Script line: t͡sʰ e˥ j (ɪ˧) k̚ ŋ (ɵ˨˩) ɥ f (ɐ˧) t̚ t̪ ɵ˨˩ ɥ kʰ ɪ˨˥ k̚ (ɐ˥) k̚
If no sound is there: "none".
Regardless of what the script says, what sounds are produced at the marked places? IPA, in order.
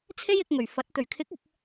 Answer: ɪ˧, ɵ˨˩, ɐ˨˥, ɐ˨

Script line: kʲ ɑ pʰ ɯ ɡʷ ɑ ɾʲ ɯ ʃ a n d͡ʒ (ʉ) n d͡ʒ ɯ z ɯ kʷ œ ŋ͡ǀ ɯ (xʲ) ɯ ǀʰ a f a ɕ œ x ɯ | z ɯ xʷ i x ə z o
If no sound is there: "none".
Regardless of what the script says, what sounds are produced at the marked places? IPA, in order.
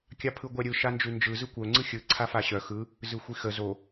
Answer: ʉ, xʲ

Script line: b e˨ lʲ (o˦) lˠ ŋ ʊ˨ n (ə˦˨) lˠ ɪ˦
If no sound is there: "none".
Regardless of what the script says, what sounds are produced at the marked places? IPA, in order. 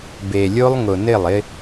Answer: o˦, ɪ˦˨

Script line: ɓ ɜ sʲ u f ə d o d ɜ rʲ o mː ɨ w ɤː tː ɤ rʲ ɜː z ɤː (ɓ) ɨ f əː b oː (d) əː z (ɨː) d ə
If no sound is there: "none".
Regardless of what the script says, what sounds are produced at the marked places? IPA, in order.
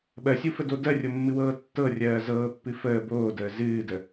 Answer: pː, d, ɨː

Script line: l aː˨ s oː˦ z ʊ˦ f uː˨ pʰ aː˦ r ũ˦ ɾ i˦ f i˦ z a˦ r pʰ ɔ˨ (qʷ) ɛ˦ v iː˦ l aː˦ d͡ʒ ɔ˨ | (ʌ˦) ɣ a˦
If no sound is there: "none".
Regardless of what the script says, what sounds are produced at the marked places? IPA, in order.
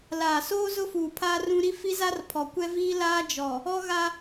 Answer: kʷ, ɔ˦

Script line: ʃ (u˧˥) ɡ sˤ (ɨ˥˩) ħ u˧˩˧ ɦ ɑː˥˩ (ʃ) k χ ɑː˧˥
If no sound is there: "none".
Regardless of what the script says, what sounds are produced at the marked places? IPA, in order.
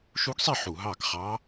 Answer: u˧˥, e˥˩, none

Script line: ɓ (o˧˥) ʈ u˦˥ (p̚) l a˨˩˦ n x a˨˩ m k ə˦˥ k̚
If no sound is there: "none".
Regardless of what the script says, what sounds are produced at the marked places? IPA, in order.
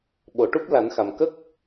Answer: o˨˩˨, p̚

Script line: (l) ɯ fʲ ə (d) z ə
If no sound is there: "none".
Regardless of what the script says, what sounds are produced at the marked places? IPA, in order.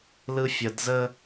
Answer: l, d

